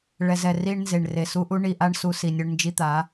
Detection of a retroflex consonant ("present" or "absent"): present